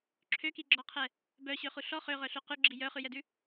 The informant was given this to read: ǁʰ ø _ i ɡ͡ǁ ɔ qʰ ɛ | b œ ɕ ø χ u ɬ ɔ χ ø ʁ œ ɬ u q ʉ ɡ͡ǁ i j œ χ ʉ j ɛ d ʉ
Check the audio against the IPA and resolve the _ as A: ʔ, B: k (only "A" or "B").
B